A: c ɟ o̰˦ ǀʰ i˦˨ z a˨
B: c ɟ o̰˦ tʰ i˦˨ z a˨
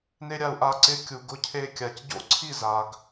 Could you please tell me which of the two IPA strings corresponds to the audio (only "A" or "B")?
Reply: A